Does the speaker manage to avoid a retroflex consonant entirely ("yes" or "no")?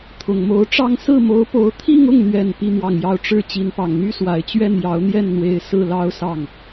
no